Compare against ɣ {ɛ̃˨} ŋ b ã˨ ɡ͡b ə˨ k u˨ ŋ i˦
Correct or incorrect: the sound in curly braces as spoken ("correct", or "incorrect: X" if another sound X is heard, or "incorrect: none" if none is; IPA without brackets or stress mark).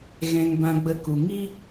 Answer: correct